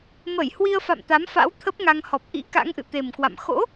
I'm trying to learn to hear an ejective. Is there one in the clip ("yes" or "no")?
no